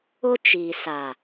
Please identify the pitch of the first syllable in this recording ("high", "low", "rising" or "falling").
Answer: high